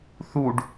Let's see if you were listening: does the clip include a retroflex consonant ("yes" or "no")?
yes